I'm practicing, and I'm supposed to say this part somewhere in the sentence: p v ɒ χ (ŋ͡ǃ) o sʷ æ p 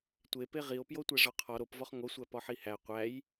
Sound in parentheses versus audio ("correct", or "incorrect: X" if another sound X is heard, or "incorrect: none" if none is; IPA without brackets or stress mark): incorrect: ŋ